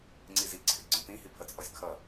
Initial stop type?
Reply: click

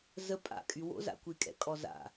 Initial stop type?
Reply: ejective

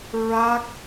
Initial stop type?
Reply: plain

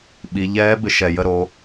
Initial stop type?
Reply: implosive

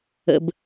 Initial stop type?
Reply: plain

